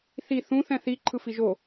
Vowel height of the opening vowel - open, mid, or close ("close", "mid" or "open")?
close